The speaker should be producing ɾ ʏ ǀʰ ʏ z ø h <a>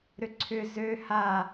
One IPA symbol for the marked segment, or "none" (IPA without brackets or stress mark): a